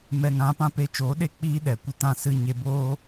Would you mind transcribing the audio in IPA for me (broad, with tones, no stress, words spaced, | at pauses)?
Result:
mɛ˨ŋã˨˦pã˦ pe˧t͡ʃoː˨˦ɗe˦ k͡piː˦ ɗɛ˨kʷə˦tã˦sɨ˦ ɲe˧boː˦